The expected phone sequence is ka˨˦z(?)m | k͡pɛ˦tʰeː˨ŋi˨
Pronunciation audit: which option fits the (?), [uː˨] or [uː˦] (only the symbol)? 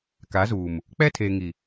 uː˨